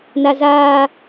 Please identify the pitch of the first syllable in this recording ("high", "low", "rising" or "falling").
high